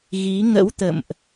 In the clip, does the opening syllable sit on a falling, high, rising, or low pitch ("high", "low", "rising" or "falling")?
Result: rising